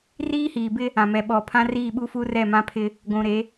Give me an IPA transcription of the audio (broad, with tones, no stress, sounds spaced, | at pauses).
r iː˦ h iː˨ b ɪ˦ | ã˨ m ɛ˨ ɓ ɔ˨ pʰ ã˦ r iː˦˨ ɓ u˦ f u˦ r ɛ˦˨ m ã˦ pʰ ɪ˦ | ɡʷ ũ˨ ɾ e˨˦